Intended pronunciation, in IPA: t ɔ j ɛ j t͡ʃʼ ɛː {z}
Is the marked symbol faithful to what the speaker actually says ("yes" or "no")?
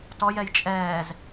yes